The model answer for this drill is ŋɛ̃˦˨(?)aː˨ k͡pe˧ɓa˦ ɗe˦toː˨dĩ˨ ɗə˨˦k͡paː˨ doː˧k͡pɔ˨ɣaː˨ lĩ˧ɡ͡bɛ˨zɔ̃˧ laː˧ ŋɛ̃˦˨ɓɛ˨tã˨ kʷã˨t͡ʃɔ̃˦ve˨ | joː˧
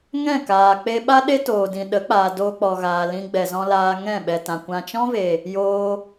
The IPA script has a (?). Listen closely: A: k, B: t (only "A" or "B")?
A